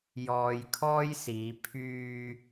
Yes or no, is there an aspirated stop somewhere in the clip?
yes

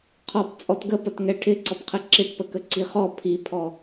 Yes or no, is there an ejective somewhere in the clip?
yes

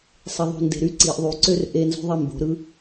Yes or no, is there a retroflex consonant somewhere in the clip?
no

